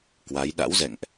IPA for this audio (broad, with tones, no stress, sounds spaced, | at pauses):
k w a˨˦ j ɗ a̰˧˥ w z ɛ̰˧˨ ŋ ʔ